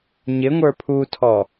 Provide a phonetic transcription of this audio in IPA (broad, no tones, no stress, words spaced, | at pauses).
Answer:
ɲɪŋʷə˞ pʰutʰɔ